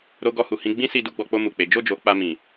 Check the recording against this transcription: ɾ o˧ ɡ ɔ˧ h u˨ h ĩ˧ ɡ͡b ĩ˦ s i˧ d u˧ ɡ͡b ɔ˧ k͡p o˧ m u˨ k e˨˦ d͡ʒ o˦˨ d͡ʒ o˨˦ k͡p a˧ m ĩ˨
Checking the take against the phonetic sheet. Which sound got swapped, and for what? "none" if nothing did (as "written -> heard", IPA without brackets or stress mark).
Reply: k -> k͡p